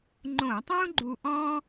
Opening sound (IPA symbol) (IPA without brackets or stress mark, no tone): ŋ͡ǃ